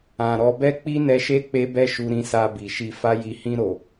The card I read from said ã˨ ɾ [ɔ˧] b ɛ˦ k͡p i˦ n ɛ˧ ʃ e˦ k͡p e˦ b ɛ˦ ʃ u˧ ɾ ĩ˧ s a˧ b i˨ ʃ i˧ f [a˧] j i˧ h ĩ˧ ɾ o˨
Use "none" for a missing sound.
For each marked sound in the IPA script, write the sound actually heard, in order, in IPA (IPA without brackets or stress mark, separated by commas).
ɔ˧, a˦